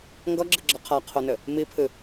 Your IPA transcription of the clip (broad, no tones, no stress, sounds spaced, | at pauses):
ŋ ɡ ʌ ɡ͡ǁ ɨ ɡ͡ǁ ʌ qʰ a qʰ o n ɘ | m i pʰ ɨ